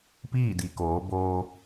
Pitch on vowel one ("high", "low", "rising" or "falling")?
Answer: falling